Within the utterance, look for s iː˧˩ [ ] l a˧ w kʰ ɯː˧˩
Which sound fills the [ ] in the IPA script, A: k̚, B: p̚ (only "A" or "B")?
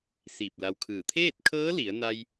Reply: B